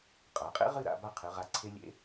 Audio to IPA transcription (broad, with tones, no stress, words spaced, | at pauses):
qʼa˩˧qʼḛ˥ ʁɨ˥˧ɾa̰˥˧ ba˥˧qʰɨ˩˧ʁa˧˩ ǀʰe˧lʲḛ˧